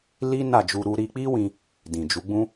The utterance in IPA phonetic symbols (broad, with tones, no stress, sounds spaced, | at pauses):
l i˦ n a˦˨ d͡ʒ u˧ ɾ u˦ ɾ i˧ k͡p i˦ w ĩ˦ | d ĩ˨ d͡ʒ u˨˦ ɡ͡b ũ˦